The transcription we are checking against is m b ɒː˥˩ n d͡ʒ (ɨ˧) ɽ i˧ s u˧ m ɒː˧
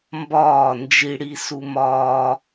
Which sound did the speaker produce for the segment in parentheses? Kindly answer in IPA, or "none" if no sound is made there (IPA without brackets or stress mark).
i˧